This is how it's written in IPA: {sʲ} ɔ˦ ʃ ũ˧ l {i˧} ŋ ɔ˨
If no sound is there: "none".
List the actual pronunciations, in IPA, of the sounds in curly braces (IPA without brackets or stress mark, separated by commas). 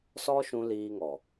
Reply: s, iː˧